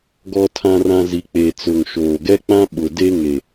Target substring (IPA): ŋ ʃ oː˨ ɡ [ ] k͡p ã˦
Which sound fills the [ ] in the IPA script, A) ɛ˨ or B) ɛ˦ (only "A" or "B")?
B